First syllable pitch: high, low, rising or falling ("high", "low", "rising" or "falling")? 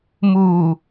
low